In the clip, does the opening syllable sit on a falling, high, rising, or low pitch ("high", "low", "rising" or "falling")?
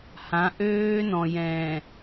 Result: rising